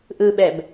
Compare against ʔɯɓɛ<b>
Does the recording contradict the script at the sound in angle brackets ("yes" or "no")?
no